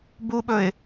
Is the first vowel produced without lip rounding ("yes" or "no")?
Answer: no